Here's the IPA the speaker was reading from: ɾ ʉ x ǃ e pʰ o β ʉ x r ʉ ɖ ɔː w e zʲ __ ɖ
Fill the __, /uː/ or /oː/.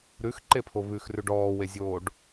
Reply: oː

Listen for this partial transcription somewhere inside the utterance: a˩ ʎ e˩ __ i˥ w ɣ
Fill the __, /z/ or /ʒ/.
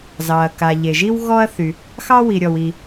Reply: ʒ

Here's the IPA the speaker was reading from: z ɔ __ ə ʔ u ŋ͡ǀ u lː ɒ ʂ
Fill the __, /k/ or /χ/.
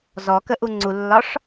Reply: k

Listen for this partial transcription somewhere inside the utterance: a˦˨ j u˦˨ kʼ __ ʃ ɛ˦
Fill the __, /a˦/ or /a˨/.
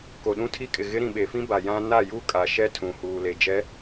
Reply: a˨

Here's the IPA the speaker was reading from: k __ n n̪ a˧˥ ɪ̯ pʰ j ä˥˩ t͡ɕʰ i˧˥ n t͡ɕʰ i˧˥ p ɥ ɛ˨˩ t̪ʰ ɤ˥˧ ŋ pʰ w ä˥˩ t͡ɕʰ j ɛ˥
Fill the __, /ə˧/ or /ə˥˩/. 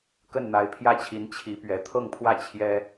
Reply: ə˥˩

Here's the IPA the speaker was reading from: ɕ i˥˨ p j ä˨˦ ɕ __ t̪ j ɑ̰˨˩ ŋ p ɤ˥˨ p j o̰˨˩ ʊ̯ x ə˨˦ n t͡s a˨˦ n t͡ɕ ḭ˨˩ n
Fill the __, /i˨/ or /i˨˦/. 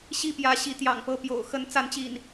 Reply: i˨˦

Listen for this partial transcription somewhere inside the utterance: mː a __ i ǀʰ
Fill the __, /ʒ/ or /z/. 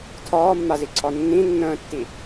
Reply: z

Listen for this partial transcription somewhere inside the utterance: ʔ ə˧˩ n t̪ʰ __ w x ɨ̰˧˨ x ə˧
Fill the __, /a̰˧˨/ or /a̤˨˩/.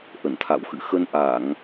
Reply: a̰˧˨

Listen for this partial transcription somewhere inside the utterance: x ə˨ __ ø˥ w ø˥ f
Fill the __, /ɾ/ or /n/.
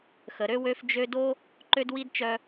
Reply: ɾ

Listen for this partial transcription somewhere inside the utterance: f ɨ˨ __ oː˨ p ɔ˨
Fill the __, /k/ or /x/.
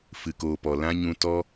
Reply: k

